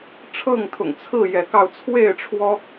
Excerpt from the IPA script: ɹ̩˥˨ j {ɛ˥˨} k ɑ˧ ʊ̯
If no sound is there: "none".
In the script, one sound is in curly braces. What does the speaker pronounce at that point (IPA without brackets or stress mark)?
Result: ɛ˨˦